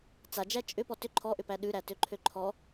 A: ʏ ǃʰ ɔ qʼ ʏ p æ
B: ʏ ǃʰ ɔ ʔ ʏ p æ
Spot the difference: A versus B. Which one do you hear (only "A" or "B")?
B